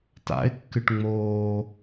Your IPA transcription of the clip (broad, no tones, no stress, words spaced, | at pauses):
ta̰ɪ̯kːɨʈ ŋ͡moː